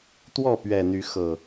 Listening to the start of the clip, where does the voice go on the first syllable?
falling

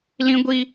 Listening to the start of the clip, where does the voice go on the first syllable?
high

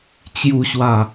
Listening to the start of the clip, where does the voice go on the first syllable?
low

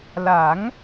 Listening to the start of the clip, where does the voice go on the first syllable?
rising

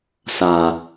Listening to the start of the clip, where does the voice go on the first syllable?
low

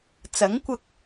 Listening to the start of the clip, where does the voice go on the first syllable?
rising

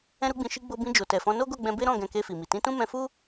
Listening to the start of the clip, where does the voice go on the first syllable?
high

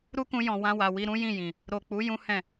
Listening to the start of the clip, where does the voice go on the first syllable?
high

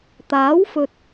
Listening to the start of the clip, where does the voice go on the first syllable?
rising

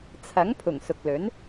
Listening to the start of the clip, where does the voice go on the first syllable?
rising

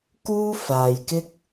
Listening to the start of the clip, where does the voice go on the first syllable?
high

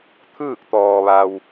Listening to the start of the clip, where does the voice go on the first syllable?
falling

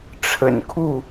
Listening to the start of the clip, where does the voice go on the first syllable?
low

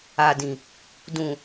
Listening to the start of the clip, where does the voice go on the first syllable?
low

